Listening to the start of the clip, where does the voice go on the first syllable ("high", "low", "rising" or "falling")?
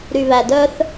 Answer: low